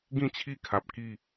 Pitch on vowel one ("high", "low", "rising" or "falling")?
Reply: falling